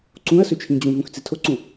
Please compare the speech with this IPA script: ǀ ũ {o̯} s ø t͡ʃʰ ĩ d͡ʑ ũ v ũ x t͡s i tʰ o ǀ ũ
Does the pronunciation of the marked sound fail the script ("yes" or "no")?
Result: yes